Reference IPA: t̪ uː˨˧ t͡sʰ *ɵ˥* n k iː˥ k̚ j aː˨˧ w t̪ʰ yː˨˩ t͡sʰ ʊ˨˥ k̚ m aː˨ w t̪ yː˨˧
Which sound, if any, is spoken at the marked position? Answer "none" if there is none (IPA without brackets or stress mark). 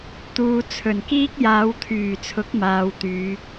ɵ˨˩